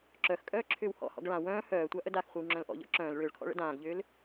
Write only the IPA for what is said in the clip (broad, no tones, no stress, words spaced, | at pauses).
ǁœxkʼœː ǁʰʏːwhɔ̰hɔ̰ɡ ɭã wœ̃ː hœːtʷa ʔədaxχʷəw ŋ͡ǁœ̃lʔɔ̰ʎɔ̰ ǁœ̃ːl ɭʏːɭkʰɔ̰ɭ ə̰dãːɡʎʏːl